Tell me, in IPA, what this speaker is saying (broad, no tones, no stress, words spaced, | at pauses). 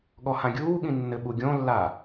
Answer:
ɠɔhãɡʲuːɠĩ nːɘɓuɡʲõlːa